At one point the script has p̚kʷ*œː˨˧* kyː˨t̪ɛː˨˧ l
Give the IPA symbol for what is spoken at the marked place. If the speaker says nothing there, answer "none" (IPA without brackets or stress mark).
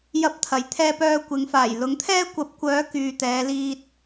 œː˨˧